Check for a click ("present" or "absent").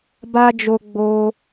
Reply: absent